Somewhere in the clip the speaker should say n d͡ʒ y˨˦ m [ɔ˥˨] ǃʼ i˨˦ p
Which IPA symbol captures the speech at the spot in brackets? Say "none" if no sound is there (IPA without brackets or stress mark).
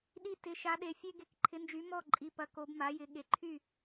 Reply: ɔ˥˨